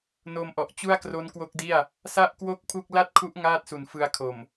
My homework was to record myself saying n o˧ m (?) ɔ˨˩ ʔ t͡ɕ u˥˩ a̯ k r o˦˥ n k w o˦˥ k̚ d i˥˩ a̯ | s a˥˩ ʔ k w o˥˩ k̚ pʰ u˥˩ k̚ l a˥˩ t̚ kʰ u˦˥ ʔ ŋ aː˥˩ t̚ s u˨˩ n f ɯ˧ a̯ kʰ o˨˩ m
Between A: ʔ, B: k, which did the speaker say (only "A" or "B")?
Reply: A